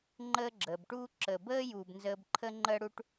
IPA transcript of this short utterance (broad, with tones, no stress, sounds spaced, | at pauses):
ŋ͡ǃ əː˦ ɡ͡ǁ əː˩ b ʈ uː˥ ǁ əː˨ b əː˥ j u˨ b n z əː˦ b ǃʰ ə˥ ŋ͡ǃ əː˥ ɽ u˥ ʈ